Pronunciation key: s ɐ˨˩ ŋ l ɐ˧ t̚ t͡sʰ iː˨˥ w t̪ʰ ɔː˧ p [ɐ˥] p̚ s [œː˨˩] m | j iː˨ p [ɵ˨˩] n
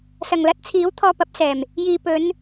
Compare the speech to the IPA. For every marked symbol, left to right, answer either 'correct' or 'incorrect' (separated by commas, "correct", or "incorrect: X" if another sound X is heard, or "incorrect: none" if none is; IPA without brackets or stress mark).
incorrect: ɐ˨˥, incorrect: ɛː˨˩, incorrect: ɵ˨˧